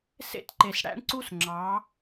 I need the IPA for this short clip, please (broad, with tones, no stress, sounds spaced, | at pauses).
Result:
s ḛ˦ t ǃ e˨ s ɽ æ̰˦ ɳ ǀ u˦ s ŋ͡ǁ ɑ˨˦